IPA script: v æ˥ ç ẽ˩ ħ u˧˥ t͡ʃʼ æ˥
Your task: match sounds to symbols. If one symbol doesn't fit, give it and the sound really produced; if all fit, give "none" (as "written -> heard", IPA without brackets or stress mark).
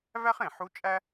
ç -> χ